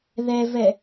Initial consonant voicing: voiced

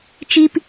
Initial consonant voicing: voiceless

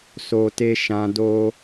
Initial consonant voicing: voiceless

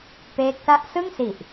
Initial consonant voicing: voiceless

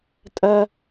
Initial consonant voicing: voiceless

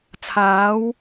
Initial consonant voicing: voiceless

